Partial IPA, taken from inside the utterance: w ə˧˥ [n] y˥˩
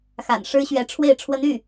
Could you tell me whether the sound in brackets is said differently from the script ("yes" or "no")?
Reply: no